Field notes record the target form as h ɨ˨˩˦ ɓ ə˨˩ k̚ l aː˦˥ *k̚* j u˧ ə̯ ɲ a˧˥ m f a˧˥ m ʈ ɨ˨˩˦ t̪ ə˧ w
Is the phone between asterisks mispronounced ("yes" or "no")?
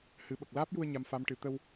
yes